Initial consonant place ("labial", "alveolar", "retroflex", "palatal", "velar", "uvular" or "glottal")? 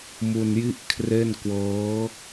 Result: labial